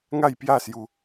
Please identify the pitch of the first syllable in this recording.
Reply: falling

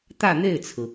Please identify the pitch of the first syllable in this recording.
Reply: falling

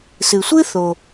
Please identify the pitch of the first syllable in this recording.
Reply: low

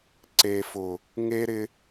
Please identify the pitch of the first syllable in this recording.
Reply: low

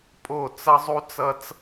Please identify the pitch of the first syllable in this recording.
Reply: falling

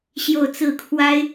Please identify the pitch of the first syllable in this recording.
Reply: falling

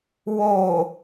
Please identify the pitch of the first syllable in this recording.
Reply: low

